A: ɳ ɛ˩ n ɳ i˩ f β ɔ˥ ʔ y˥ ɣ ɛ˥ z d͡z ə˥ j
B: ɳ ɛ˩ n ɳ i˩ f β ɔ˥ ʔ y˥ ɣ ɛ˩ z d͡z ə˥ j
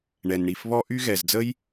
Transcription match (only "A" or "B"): B